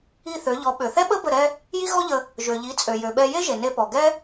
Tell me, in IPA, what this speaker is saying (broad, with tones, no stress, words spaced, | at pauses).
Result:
i˥˩θø˩˥ʎɔ˩˥ ɓø˩θɛ˥ɓə˥ bə˥˩ɾɛ˥ | ji˥ɣɔ˥ʎə˧ | ʒø˩ʎi˩˥t͡sʼø˩ jø˩ɓɛ˧ je˥ʒe˩ ne˧pɔ˩ ɡɛ˥